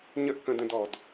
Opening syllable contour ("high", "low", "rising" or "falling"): high